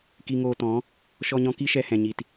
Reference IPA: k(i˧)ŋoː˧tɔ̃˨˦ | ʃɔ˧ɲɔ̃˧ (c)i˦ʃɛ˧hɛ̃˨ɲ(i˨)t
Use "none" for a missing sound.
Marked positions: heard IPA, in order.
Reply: i˧, k, i˨

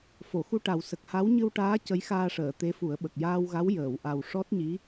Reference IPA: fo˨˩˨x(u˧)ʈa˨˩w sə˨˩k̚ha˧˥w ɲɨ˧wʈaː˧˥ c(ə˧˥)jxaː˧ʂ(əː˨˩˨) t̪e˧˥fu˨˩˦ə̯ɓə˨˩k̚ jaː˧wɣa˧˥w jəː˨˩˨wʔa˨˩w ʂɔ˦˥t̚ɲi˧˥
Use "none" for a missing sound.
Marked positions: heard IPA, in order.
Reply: u˧, ə˧˥, əː˨˩˨

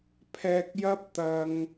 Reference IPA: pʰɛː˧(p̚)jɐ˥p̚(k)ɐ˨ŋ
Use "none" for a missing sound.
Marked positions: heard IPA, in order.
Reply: k̚, t̪

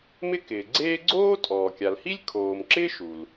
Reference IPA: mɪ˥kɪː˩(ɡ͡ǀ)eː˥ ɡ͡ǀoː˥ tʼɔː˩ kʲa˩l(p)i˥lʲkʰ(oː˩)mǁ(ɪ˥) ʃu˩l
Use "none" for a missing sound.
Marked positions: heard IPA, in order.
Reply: ɡ͡ǀ, h, oː˩, ɪː˥

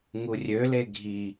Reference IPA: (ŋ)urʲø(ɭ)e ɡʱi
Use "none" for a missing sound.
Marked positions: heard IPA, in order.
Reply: ŋ, l

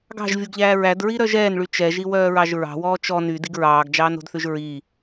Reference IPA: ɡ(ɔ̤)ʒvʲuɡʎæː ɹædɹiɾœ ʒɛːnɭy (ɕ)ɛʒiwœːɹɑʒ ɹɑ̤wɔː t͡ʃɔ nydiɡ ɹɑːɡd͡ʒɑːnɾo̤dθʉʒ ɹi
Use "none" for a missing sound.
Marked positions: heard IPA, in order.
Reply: ɑ̤, t͡ʃ

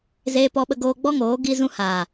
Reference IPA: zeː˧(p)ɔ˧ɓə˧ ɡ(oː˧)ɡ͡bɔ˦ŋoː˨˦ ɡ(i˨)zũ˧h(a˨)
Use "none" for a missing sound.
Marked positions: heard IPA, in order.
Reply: p, oː˧, i˧, aː˨

